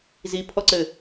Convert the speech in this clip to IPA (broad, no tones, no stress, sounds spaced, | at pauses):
z i pʰ ɔ ǀ ɘ